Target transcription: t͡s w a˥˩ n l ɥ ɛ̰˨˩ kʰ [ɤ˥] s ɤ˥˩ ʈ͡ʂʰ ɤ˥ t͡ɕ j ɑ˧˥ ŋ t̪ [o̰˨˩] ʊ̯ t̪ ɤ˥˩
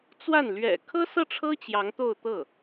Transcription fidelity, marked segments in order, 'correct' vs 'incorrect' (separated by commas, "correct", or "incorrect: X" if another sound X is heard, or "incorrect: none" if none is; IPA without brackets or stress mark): correct, incorrect: o˥˧